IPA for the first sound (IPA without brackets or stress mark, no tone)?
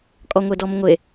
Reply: kʼ